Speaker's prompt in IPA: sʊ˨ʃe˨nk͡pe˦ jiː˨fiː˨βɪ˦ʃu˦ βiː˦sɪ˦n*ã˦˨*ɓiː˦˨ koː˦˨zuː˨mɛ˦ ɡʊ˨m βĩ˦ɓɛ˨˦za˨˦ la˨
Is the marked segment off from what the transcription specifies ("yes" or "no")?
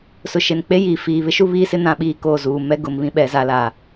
no